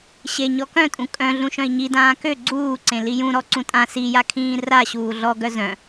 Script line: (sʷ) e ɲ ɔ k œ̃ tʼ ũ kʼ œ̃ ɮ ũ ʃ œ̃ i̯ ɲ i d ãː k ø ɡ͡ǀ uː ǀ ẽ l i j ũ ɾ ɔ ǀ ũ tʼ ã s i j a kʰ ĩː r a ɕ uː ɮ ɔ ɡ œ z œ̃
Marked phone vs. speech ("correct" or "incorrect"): incorrect